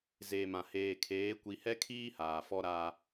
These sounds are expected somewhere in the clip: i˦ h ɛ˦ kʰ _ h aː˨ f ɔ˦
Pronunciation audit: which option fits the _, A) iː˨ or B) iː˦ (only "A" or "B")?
B